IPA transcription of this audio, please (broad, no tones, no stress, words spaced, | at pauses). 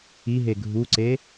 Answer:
iɦe ɡʱuǀe